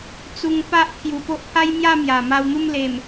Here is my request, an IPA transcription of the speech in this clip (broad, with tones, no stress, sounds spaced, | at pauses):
t͡s u˧ ŋ p a˦ ʔ kʰ j u˨˩ p o˦ ʔ pʰ a˦ j m j a˥˧ m j a˨˩ m a˧ w n̪ u˥˧ m l e˨˩ m